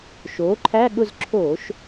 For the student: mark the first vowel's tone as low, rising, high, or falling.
rising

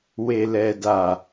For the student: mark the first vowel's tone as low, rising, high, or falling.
low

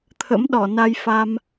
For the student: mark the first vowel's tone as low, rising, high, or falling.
rising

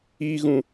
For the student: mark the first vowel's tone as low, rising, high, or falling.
high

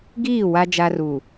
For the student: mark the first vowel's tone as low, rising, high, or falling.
falling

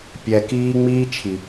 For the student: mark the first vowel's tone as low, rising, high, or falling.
low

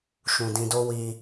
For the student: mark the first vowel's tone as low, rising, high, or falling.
low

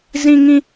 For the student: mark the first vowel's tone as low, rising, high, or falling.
high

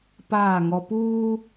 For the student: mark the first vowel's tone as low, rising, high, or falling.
falling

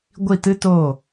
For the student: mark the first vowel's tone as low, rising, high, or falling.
falling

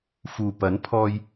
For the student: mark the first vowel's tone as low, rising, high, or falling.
low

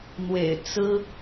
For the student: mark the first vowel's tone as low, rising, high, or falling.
low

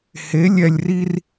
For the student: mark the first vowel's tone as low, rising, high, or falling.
rising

